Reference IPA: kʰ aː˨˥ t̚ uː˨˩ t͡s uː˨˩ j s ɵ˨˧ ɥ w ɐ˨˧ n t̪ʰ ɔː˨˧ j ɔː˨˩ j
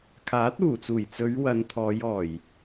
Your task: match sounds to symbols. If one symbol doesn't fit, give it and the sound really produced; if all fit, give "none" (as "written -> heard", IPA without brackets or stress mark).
s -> t͡s